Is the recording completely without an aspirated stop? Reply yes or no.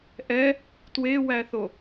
yes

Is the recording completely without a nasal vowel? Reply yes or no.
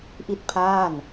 yes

